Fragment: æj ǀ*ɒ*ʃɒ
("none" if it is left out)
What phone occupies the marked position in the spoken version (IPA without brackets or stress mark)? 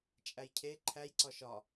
ɒ